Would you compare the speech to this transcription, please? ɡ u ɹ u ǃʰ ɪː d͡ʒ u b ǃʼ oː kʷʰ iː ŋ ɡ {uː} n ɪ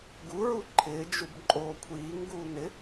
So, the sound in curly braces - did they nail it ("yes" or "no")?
yes